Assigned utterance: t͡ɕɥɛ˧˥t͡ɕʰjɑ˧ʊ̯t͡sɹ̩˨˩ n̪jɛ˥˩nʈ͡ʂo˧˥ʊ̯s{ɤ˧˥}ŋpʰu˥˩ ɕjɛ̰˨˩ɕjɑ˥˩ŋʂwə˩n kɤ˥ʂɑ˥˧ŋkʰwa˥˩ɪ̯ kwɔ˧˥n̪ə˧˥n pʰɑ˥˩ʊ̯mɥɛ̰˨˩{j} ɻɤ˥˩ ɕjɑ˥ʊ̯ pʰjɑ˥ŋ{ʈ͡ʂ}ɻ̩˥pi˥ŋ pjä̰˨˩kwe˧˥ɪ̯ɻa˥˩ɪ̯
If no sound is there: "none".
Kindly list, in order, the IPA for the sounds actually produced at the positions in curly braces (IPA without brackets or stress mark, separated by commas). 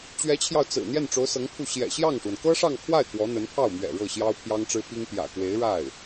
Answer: ɤ˧˥, none, ʈ͡ʂ